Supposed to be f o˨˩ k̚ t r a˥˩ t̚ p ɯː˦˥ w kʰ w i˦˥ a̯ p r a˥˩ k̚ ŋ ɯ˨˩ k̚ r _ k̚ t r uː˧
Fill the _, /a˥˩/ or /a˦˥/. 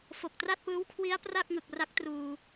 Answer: a˦˥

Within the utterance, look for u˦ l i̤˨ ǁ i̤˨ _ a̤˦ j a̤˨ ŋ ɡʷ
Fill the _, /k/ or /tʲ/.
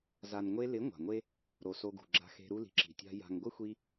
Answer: tʲ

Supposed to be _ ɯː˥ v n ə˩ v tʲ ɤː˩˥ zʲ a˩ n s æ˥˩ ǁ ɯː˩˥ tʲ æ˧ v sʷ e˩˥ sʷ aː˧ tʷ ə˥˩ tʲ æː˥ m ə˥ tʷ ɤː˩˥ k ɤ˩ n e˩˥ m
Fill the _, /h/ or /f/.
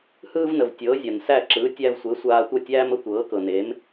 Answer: h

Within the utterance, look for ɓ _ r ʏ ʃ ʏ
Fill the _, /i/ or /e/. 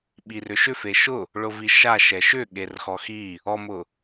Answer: i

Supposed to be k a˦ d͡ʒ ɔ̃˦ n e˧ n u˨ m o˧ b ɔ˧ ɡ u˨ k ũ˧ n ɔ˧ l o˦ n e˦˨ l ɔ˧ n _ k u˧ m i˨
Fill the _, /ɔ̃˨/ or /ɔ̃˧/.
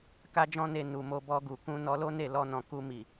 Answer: ɔ̃˨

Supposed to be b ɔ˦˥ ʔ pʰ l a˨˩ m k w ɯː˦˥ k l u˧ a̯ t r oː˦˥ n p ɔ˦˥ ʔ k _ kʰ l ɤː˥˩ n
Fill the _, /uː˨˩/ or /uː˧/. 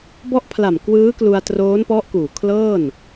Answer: uː˨˩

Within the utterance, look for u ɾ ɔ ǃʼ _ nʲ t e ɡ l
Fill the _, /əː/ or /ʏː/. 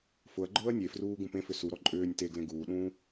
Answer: ʏː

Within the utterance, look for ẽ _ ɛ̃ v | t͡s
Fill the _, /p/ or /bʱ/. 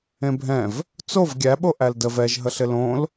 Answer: bʱ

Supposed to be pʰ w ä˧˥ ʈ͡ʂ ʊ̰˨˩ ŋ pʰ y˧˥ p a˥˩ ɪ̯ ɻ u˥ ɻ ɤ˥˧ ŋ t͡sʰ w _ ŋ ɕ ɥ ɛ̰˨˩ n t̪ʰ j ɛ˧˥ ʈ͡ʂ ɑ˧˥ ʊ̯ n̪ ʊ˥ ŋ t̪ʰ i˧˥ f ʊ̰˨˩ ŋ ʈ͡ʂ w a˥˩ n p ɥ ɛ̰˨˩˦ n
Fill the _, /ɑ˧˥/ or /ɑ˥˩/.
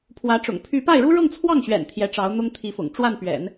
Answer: ɑ˥˩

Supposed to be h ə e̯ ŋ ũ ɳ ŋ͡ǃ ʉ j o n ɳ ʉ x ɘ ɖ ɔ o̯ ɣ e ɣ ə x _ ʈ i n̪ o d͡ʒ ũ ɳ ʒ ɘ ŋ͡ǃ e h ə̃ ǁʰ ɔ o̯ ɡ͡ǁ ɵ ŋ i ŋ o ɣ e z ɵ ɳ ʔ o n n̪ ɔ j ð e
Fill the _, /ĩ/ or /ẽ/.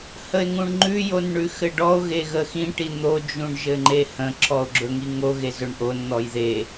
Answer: ĩ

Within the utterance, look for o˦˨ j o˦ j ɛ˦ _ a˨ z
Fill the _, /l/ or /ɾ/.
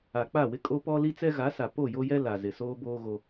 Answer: l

